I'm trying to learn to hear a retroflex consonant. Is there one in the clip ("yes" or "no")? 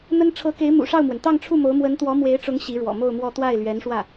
yes